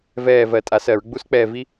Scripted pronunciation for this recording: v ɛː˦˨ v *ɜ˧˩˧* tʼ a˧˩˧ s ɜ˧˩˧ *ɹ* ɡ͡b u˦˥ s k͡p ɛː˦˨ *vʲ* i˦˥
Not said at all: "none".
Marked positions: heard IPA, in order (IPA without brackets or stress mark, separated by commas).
ɜ˧˩˧, ɹ, v